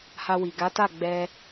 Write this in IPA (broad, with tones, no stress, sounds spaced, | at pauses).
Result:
h a˧ w i˨ ɡ a˨˦ t a˦˨ ɡ͡b ɛ˧